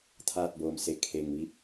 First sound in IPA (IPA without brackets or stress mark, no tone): t̪ʰ